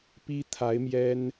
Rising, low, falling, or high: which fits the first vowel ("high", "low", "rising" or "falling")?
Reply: high